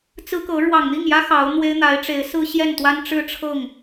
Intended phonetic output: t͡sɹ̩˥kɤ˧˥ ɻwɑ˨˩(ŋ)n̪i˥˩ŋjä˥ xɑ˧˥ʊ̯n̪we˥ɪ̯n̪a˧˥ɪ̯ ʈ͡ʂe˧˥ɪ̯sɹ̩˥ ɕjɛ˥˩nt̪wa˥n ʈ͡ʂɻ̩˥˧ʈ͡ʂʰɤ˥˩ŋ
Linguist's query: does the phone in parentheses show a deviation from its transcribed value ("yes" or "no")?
no